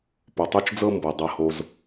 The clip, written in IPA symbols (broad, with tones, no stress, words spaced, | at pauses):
po˨tˤo˦t͡ʃd͡zɤ˦ mbɤ˨dˤɤ˧ho˧z